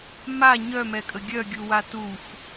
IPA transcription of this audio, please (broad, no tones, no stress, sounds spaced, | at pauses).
m a ɲ œ m ɛ kʼ ə ɡʲ œ ɡʲ u w a t u x